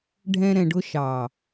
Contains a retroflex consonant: yes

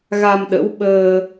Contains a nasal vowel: no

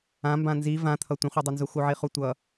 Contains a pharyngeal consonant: yes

